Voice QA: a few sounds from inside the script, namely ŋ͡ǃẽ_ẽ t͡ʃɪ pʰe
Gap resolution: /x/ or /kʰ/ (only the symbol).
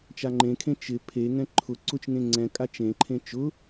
kʰ